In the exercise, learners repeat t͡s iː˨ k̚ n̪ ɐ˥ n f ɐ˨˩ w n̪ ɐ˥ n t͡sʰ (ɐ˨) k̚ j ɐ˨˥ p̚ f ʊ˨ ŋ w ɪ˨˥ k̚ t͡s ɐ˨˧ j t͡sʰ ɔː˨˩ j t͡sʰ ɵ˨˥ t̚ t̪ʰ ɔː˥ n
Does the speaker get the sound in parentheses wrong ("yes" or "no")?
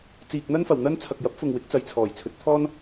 no